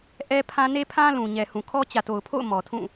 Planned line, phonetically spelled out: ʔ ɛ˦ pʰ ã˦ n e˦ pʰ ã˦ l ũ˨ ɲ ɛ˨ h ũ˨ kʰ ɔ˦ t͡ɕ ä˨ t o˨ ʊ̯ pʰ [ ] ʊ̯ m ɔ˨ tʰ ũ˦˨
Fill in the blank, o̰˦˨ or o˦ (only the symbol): o̰˦˨